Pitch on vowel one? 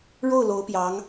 falling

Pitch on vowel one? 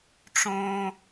high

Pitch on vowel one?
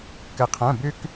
low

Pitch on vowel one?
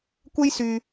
high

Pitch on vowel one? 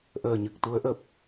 low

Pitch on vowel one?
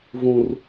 high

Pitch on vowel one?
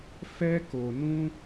high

